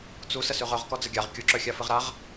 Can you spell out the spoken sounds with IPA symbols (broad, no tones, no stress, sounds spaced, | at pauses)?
t͡s u s ə s ʉ ʁ œ ʁ k ɔ d͡z ə ɡʲ a ʁ kʲ u ǁ œ xʲ a f ɨ ʁ ɾ a ʁ